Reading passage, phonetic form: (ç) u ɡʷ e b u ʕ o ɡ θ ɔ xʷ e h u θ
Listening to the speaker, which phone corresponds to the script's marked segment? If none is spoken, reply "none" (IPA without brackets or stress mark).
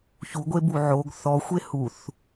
ç